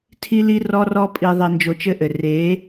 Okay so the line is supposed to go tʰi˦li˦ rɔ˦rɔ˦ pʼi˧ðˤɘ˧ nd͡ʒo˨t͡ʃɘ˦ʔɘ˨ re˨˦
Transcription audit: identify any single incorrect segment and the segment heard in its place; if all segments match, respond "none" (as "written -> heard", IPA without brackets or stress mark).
o˨ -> o˧